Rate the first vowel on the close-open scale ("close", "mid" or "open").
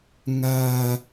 open